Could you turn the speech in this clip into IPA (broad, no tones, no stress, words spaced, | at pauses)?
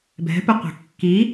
bɛ̤pɪqʷɛ̤ kːi